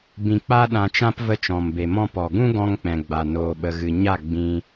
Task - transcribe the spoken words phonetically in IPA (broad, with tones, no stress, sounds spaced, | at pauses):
b ĩ˧ k͡p a˦ ɗ ã˧ t͡ʃ ã˦ p v ə˧ t͡ʃ ɔ̃˨ m b e˨ m ɔ̃˧ p ɔ˨ ɡ ũ˦ ɡ ɔ̃˧ ŋ k͡p ɛ̃˨ ɡ͡b a˨ n oː˧ ɓ ə˧ ɣ ɨ˧ ɲ a˦˨ ɡ͡b ĩ˧